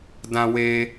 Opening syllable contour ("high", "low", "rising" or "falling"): high